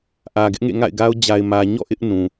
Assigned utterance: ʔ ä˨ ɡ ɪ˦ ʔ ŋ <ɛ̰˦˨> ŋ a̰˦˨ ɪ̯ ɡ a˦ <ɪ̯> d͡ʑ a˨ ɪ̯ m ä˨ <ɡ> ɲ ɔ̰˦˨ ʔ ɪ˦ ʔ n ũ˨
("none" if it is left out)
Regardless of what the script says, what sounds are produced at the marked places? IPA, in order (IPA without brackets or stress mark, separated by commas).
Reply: ḛ˦˨, ʊ̯, none